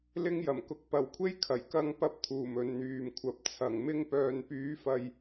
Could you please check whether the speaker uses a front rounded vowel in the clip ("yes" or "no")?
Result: yes